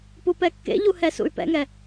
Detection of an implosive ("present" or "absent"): absent